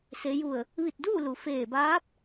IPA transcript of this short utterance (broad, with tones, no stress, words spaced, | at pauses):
se˩˧ju˧˩ə̯ | ʋi˧˩t̚duː˥˨ lu˩feː˧˩ baː˧˥p̚